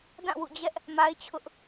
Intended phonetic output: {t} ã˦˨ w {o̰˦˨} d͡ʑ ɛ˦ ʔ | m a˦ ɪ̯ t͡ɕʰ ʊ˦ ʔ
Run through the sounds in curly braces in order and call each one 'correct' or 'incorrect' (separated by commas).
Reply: incorrect, incorrect